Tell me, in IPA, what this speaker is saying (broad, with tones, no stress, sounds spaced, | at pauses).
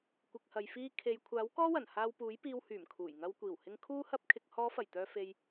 kʷ ɪ˨ k̚ h ɐ˨ j f iː˧ kʰ e˨ j kʷʰ aː˨˥ w k ɔː˥ w ɐ˨˩ n h aː˧ w p uː˨˥ j p iː˧ w h yː˨˩ m kʰ uː˨˩ j ŋ ɐ˧ w kʷ iː˨˩ w h ɪ˧ ŋ kʰ uː˥ h ɐ˥ p̚ kʰ ɪ˧ k̚ h ɔː˨˧ f ɐ˨˩ j t̪ œː˨ f e˨ j